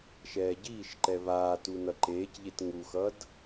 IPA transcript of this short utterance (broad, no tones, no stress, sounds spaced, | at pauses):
ʃ ɛː ɟ iː ʃ ǃ ɛ β aː t u n ʌ ǃ eː c ʎ e t ŋ u x ʌ d